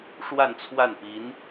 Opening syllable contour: falling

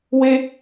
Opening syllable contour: high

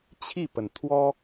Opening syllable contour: falling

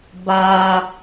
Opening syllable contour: low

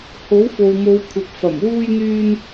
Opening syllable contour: rising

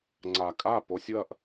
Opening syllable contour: low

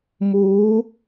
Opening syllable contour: rising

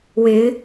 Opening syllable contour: rising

